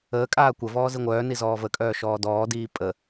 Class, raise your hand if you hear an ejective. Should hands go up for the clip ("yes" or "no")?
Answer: yes